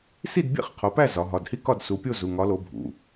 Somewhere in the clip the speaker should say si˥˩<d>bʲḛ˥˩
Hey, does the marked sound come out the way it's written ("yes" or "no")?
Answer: yes